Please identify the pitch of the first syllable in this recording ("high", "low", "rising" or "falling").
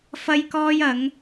high